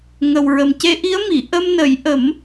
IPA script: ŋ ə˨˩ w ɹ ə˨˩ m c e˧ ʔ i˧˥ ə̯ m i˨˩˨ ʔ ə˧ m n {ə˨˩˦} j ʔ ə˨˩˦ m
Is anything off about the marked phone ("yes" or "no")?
no